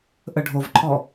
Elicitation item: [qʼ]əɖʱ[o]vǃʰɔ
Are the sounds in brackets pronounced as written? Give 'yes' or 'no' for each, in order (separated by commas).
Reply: no, yes